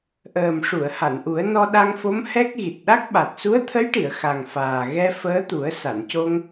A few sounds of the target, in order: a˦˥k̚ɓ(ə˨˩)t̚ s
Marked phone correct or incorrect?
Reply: incorrect